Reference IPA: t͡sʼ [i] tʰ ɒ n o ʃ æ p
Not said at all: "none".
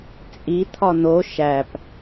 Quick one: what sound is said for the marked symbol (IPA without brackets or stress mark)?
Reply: i